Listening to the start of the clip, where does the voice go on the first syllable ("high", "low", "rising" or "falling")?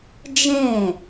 falling